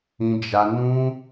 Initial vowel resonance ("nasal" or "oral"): nasal